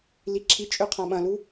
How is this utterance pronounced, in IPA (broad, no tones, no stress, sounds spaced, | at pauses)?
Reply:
l i ǁʰ i t͡ʃʼ ø qʰ ã ɓ ɐ̃ l u